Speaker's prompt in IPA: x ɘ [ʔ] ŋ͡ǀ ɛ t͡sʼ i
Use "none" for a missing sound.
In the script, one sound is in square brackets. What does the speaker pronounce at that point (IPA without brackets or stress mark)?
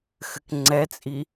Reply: k